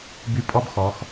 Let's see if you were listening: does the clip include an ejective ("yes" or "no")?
yes